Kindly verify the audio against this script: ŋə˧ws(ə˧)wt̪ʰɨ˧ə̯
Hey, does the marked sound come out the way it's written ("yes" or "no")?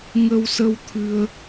yes